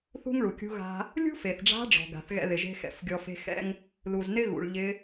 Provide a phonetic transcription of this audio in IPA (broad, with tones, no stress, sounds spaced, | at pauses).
θ ṳ˥ ŋ ɭ u˩ kʲ ṳ˧˥ ɣ a̤˧ | lʲ ṳ˥ f e˩ θ ɖ͡ʐ a̤˧˥ ɖ͡ʐ ɔ̤˩ ɡ a̤˩ θ ɣ ɛ̰˧ ð ɪ˩ ʒ e̤˥ x ɛ̰˩˧ f ɡʲ ɔ˧ f e̤˥ x ɛ̰˥ ŋ | l u˩ z n ɪ˥ ɣ ṵ˩ ɭ ʎ ɪ˧˥